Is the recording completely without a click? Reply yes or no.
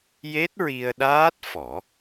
yes